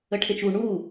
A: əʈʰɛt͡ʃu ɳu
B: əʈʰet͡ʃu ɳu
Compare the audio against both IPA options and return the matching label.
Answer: B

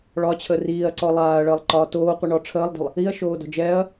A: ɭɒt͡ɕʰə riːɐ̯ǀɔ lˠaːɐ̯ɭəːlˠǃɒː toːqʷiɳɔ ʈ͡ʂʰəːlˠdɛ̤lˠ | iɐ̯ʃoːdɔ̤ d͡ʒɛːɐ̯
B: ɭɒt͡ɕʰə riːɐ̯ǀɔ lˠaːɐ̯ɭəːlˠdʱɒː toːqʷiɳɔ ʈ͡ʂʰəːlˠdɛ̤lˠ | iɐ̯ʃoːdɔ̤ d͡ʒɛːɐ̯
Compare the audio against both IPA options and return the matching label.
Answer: A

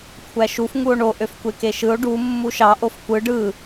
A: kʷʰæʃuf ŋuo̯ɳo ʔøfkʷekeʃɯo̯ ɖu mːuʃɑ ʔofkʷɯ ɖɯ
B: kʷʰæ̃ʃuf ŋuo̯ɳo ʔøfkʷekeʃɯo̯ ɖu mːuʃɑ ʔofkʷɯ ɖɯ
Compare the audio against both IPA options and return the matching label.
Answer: A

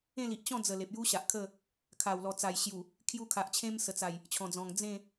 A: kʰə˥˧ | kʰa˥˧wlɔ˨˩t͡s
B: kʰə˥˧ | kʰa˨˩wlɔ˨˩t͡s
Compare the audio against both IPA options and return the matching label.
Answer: B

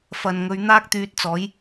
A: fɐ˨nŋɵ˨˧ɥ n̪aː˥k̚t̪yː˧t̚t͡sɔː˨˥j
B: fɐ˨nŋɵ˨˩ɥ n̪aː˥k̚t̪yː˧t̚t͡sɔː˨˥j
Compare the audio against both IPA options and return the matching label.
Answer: A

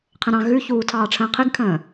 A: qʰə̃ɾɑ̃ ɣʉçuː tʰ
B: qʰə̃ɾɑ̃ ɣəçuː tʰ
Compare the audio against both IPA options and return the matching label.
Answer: A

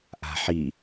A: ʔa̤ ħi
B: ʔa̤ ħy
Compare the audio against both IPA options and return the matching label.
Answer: A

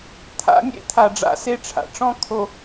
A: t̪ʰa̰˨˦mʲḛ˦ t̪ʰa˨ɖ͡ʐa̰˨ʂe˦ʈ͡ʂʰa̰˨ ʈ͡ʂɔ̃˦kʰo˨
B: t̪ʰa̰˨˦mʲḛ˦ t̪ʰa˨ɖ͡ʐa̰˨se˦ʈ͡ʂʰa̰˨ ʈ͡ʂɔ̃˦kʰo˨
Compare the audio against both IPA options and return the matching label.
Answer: B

